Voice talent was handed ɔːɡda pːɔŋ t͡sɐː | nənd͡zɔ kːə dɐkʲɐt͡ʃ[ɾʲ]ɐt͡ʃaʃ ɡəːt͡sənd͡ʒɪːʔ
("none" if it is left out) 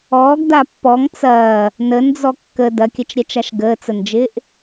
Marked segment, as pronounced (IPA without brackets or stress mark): ɾʲ